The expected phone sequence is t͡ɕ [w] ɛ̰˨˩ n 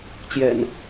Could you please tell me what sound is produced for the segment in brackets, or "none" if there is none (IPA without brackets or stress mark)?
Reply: j